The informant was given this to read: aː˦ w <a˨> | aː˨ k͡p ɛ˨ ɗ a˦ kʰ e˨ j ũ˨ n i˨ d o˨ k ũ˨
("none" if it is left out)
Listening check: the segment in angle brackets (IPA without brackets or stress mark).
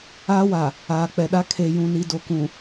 a˨